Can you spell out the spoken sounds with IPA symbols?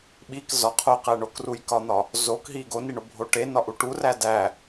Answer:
ɓ i k z ɒ qʰ o q æ ɳ o k r u j k ɒ n̪ ɒ | z o k ɦ i ɡ o n i ɳ o bʱ o ʈ e n ɒ ʔ u ʈ u r æ d æ

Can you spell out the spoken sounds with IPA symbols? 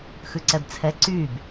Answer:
x ʉ ǀ ɛ b t͡sʰ ɛ ǀ y b

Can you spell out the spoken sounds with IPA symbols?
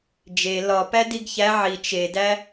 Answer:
d͡ʒ e l ɒ p æ d i ɡ ç æ ʕ i t͡ʃ e d æ

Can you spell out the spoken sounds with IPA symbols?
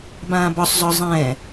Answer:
b ãː b ɒ sˤ z ɒ zˤ ɛ̃ː

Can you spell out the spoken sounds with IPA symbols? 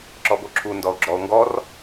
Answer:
ǁ ɔ b o ǁʰ u n d ɔ o̯ ɡ͡ǁ ɔ o̯ ŋ ɡ ɔ r

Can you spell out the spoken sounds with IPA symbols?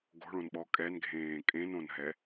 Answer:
ɡ o̤ ɭ õ n ɓ ɔ kʼ ɛ n ɡʱ ẽː kʼ ẽ n õ n ɦ ɛ

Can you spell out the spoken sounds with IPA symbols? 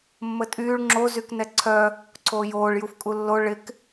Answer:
mː ə tʼ yː ɭ ŋ͡ǁ o z y k n ɛ ǀʰ œ | ǀʰ oː j oː ɭ j u f kʼ u lː o ɭ ɪ k

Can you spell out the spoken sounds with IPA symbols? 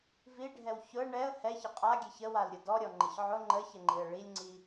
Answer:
v i ɖʱ ɛ w ç ʊ ə̯ ɳ ɛ ə̯ h ɛ ç ə qʼ a ɡʲ ɛ ç ə w a l ɾʲ ʊ d ɔ ɾʲ ɔ ŋ͡ǃ ə ç ʕ ʊ ŋ͡ǃ ə ç ə ŋ͡ǃ i ə̯ ɭ i lʲ ŋ͡ǀ i

